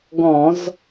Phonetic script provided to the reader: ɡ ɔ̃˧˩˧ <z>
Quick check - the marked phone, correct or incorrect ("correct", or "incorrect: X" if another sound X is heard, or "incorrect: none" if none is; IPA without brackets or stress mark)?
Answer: correct